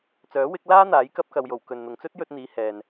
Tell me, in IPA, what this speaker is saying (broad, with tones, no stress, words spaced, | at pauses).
t͡sœː˨˥wɪ˨˥k̚ laː˥n̪aː˨˥j kɐ˧p̚kɐ˨wjo˨˩w kɵ˨nn̪ʊ˨ŋ t͡sɵ˥t̚jɵ˧t̚n̪iː˨˧ hɛː˨n